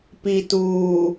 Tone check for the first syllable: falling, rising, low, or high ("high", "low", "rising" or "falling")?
low